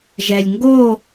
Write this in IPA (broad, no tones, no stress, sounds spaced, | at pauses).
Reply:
ʒ ɛ lʲ ŋ ɡ o